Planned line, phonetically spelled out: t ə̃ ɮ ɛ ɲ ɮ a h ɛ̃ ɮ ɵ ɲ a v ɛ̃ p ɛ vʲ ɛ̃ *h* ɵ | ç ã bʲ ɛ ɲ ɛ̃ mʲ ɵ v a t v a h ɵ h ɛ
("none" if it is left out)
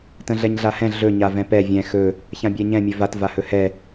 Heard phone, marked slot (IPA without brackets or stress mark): x